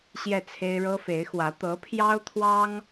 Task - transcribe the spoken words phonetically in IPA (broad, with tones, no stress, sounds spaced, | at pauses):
ɕ j ɛ˥˩ t͡sʰ e˥ ɪ̯ ɻ ɤ˥ f e˧˥ ɪ̯ x w ä˧˥ t̪ ɤ˧˥ pʰ j ɑ˥ ʊ̯ t̪ʰ w ɑ˥ ŋ